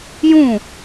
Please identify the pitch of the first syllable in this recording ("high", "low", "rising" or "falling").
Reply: falling